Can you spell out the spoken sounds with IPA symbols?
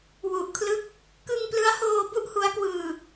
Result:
wu˨˩ʔkʰlɯ˦˥k̚ | kɯ˧ŋplɯ˦˥a̯hoː˧ bu˥˩ʔhu˦˥a̯kwɯː˧

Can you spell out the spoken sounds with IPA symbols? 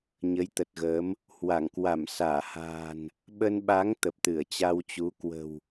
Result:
ɲə˨˦jt̪ə˨˩t̚ɣəː˨˦m | hwa˧˩ŋ kwa˧˩msaː˧˩ha̤ː˨˩n | ɓə˧nɓa˨˦ŋ t̪ə˨˩p̚ t̪ɨ˧˩ə̯t͡ɕa˧wt͡ɕu˨˦ kwə̤˨˩w

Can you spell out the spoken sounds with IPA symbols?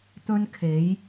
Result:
t̪ɵ˧nkʰe˨˧j

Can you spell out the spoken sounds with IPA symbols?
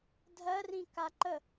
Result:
dʱɜrĩka ǃə

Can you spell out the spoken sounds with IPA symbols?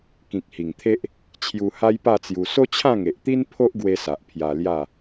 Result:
kĩ˨k̚hi˨˩ŋt̪ʰe˦ʔ | t͡ɕʰju˧ha˦jpa˥˧t͡sju˧ so˦t͡ɕʰã˥˧ŋe˨ʔt̪i˦n pʰo˦ʔɡwe˧sa˨ʔ pʰja˧lja˥˧

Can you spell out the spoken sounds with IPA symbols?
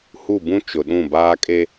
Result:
hu˦˨bũ˦ t͡ʃʊ˨ɗũ˦˨baː˦ kʼe˦

